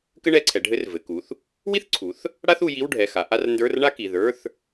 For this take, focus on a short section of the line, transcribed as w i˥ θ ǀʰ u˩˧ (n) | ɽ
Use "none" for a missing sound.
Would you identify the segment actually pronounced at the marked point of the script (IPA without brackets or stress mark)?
θ